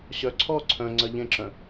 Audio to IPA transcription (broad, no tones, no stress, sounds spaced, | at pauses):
ɕ œ ǀʰ ɔ ǀʰ œ̃ ŋ͡ǀ ɜ ʎ ẽ ǁ œ̃